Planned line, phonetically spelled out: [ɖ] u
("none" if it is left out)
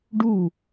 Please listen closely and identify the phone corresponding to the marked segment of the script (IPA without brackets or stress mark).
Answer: ɖ